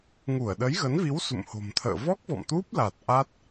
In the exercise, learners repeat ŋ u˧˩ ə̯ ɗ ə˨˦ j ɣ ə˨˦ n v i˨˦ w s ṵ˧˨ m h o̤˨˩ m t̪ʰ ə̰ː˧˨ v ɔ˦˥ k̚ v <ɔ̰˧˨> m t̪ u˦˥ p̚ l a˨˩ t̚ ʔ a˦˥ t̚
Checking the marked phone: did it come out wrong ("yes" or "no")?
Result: no